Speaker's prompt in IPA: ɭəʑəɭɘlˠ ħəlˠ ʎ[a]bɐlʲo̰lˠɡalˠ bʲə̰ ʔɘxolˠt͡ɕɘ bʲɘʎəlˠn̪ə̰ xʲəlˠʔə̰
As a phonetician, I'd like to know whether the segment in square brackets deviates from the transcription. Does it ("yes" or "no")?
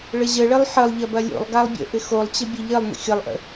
yes